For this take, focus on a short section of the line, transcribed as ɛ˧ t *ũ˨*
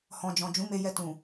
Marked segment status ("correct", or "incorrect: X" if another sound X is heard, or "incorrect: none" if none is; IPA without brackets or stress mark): correct